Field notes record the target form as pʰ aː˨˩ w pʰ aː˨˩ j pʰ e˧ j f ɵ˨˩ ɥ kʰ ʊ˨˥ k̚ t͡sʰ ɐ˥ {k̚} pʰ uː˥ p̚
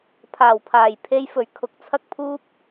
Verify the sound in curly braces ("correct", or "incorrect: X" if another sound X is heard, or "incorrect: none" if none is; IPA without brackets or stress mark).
correct